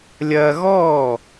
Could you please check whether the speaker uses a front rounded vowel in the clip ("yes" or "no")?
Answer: no